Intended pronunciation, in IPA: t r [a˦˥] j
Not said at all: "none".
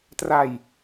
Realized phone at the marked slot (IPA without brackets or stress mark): a˧